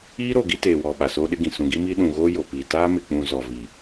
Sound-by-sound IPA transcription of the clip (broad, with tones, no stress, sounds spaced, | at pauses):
iː˦ ɾ o˨ ɡ i˦ t eː˨ w ɔ˨ ɓ a˨ s oː˦ ɗ ɪ˦ ɡ ĩ˨ s ũ˨ ɡ i˦ m iː˦ ɗ ũ˨ ɣ oː˦ j o˨ p iː˨ t aː˦ m ɪ˨ k͡p ũ˨ z ɔ˨ v i˨